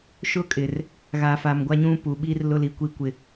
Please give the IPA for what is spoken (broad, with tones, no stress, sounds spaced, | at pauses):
ʃ ʊ˦ kʼ ɪ˨ r | ɣ a˨ f a˨ m ɡʷ a˦ ɲ ũ˦ p u˨ ɓ i˦ r l ʊ˦ l i˨˦ kʷ i˦ kʷ ɪ˦